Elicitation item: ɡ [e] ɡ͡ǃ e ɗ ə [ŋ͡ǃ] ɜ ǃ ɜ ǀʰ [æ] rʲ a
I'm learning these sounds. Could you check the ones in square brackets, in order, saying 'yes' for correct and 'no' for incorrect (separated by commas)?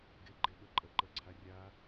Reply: yes, no, no